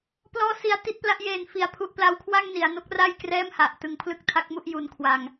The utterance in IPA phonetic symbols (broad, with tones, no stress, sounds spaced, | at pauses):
p l ɔː˦˥ s i˦˥ a̯ t i˦˥ t̚ p l a˦˥ ʔ j eː˧ n f i˧ a̯ pʰ u˦˥ ʔ p l a˦˥ w kʰ w a˥˩ ŋ n i˩˦ a̯ n o˦˥ k̚ r aː˥˩ j k r ɛː˥˩ m h a˨˩ ʔ t ɯ˧ ŋ pʰ l ɯ˦˥ k̚ tʰ a˦˥ k̚ m u˦˥ ʔ j u˧ n kʰ w a˧ ŋ